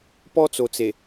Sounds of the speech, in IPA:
p ɔ˦ t͡s o˨ t͡s e˨

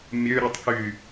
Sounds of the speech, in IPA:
mʲ ø ɾʲ u tˤ k y

